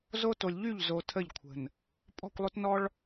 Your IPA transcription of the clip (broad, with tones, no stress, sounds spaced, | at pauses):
z o˦ t o˨ lʲ ʎ y˦˨ ʎ z o˨ tʰ ə˦˨ ʎ kʷʰ ə̤˨ n | pʼ ɔ̤˦˨ kʷ lˠ o˦ t n ɔ˦ ɭ